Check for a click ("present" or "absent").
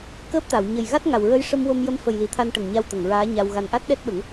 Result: absent